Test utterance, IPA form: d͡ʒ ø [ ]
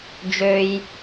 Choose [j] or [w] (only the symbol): j